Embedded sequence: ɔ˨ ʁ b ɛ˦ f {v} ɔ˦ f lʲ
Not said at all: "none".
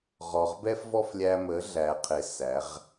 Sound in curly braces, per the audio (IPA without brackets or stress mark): v